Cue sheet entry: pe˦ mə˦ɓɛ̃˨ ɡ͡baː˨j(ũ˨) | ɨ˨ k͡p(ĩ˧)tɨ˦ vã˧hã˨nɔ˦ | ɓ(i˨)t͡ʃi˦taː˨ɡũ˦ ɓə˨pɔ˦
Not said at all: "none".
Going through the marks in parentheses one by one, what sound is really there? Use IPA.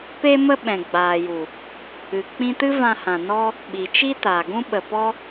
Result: u˨, ĩ˧, i˨

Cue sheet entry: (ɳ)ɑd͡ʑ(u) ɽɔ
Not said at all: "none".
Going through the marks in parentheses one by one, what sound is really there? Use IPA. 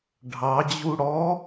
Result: ɖʱ, u

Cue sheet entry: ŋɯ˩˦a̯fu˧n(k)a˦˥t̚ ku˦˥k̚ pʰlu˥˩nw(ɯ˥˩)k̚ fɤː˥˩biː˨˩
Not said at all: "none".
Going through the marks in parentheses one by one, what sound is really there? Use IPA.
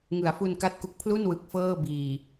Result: k, ɯ˨˩

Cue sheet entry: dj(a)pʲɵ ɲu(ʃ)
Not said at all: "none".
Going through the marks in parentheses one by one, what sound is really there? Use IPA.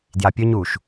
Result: a, ʃ

